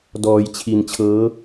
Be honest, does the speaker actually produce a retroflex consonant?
no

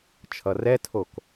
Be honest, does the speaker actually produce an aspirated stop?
yes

